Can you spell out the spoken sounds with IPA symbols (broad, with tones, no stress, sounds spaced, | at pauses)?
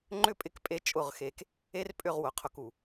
ŋ͡ǃ ʏ˦ pʼ ɪ˧ k pʼ e˧ t͡ʃʼ ʊ˦˨ ʁ x e˧ k | e˦ r pʼ ʏ˦˨ ʁ w ʊ˨ qʰ ʊ˧ k u˨